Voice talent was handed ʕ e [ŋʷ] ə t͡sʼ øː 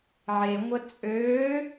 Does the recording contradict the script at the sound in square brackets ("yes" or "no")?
no